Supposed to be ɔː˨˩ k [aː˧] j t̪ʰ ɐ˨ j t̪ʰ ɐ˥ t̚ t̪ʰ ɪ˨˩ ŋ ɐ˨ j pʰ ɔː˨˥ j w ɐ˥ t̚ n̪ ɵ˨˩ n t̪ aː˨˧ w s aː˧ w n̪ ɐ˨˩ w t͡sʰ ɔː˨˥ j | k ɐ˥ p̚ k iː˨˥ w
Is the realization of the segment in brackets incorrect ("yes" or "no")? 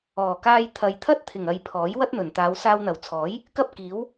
no